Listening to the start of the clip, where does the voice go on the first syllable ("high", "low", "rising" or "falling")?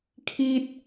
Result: high